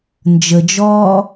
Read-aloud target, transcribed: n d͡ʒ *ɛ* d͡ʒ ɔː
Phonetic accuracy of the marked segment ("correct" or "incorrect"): incorrect